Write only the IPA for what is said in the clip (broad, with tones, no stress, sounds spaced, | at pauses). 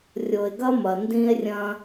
rʲ o˨ e̯ ɡ ɐ˦ m ɐ˨ n d ĩ˦ e̯ rʲ ɐ̃˦